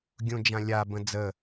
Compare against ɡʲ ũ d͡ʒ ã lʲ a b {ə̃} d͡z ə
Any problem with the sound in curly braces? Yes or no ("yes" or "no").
no